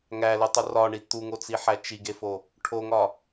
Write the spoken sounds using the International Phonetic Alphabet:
ŋ æ l u tˤ u r ɒ ɳ i t̪ u ŋ o t͡s i ħ æ t͡ʃ i ɡ e f o | ʈʰ o ŋ ɒ

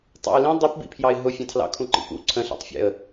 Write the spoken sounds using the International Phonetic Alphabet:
tˤ ɑ̰ ɪ̯ l ĩ dˤ i p b ḭ pʰ j ɑ ɪ̯ ɦ ʊ fʲ ɑ̃ tʰ l ɑ̰ kʰ ũ ǃ ḭ p ṵ ǀʰ ə̃ ɬ ɑ̰ tˤ fʲ ɛ̰ ə̯

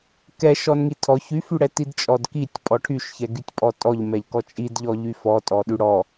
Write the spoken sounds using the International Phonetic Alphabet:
k ɛ ʃ ɔ n ŋ i tʰ ɔ ç y f y ɽ ɛ t i d t͡ʃʼ ɔ d k i tʲ pʼ ɔ ʈʰ y ʃ ç ɛ ɡ y tʲ pʼ ɔ tʼ ɔ ʎ m ɛ ʎ k ɔ t͡ʃʼ i d ʎ ɔ ʎ y f ɔ tʼ ɔ ɗ y ɽ ɔ

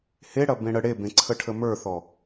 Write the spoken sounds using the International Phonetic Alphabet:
h e ɽ ɐ b ẽ ɽ ə ɽ e b ẽ ǀʰ ə ʈʰ ə m ə˞ θ ɔ

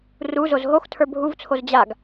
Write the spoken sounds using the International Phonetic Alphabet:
r u z o z ɦ o x tʰ ə˞ bʱ u v t͡sʰ o z d͡ʑ a ɡ

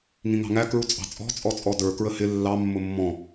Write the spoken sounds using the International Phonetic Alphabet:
ŋ ĩ ŋ ɑ̤ ŋ æ k ɹ u t͡sʼ ɑ̤ t͡sʼ ɔ̤ t͡sʼ ɔ t͡sʼ ɔ d ə˞ k ɹ ə h ɪ lː ɑ mː ʊ mː ɔ̃

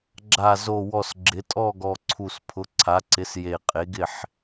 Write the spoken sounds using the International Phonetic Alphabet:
ɡ͡ǁ a˨˩ z o˨˩ w ɔ˨˩ s ɡ͡ǁ ɪ˩˥ tʼ ɔ˥˨ ɡ ɔ˨˩ ǀʰ u˨˩ s pʰ ʊ˩˥ ǀʰ a˩˥ ǀ ɪ˩˥ s j e˨˩ qʼ e˩˥ ɡ ɪ˥˨ ħ

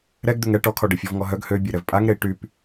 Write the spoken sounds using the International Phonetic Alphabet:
ɾ ɛ ɡ d̪ ø ŋ ɛ ʈ ɔ kʰ ɔ ɖ e fʲ ɔ v ŋ ɔ ɦ œ ɡ h ø bʲ e ɾ ɛ v pʼ a ŋ ɾ e i̯ ʈ y p

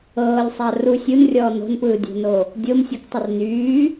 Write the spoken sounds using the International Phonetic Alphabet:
ɤː lʲ sˤ a r u sʲ u n rʲ ɔː n o̤ n p ɯː dʲ o̤ n o | dʲ o m sʲ u k tˤ ɪ r n yː

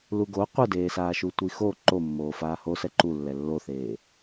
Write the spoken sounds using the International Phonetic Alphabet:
l u ɡ o qʷ ɯ d eː s aː ʃ u tʷ i x o ǃ o mː oː f aː h o s ɛ ǃ u lː ɛ lː o θ eː

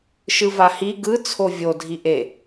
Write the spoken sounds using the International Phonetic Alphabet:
ʃ ɯ v a h i ɡ ɯ t͡sʰ o vʲ o dʱ i ʔ e

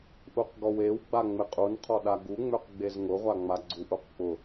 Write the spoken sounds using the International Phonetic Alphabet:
ʔ u q ɡ ɔ w e w ɡ͡b a ŋ͡m ɪ qʼ u n qʰ ɔ ɗ a ɡ u ŋ͡m ø q ɡ͡b e z ŋ ʊ ʁʷ a ŋ͡m a ɡ͡ǀ u ʔ u q k͡p ʊ

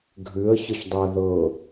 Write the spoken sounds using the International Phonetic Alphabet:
ɡʱ ʉ ə̯ ç ə ç dˤ e ə̯ ð ɤ

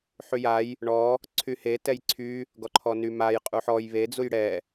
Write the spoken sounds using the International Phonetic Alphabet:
ħ y j a j | ɳ ɔ | ǀʰ y h e t ɛ j ǀʰ y | ɡ ɔ ǃʰ ɔ n y m a j qʼ u ħ ɔ j β e d͡z u j ɽ ɛ

